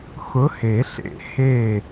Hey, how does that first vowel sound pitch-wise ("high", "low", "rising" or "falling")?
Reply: rising